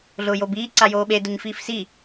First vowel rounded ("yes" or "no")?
yes